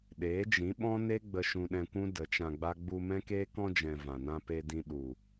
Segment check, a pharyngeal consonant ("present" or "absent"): absent